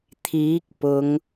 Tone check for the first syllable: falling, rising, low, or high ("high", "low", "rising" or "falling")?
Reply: rising